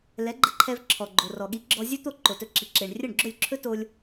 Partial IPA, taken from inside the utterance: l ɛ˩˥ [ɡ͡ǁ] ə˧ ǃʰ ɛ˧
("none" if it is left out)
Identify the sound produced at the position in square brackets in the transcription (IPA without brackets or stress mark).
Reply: ɡ͡ǃ